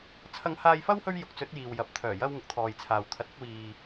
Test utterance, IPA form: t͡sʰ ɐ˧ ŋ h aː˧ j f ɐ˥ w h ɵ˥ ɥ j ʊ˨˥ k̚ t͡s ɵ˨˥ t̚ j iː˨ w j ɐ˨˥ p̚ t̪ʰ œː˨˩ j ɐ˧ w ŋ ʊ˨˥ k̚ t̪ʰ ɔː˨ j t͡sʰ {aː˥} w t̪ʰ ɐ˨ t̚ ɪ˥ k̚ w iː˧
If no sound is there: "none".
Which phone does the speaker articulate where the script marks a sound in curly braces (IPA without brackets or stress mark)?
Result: aː˨